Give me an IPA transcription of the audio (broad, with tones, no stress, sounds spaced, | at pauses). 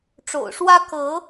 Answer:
ʈ͡ʂ o̰˨˩ ʊ̯ ʂ w ä˦ k ɤ˨˦